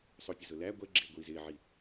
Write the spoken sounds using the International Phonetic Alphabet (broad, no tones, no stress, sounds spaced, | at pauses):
sˤ ʊ pʲ ə z ʊ l æ ɡʷ ɛ ɡ͡ǁ ɪː ɡʷ iː z ɪː ʕ i